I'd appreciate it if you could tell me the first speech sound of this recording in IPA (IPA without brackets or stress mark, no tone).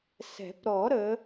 s